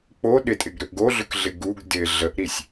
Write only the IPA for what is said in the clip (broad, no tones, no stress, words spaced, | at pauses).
k͡po ɗɪtʼɪɡɾʏʔ ɡoɮʏkɮɪ ɡuɡ dɪ ɮəʔɾisʲ